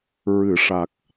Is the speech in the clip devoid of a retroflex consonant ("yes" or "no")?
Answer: no